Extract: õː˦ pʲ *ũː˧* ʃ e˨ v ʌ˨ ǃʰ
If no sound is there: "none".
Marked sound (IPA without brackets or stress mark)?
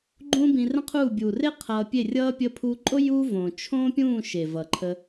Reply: ũː˦˨